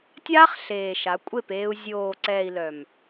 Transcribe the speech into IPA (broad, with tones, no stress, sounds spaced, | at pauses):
tʲ aː˦ χ ɬ eː˨ ʃ a˨˦ kʷʼ e˦˨ p eː˧ u̯ zʲ oː˨ ǀ ɛː˨ i̯ l œ˨ m